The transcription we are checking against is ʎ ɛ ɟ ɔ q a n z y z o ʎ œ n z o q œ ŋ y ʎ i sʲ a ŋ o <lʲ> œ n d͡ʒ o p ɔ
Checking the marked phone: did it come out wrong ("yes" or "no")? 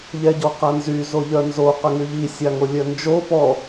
no